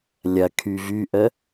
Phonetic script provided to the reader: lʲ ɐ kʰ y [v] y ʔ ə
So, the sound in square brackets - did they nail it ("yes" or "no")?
yes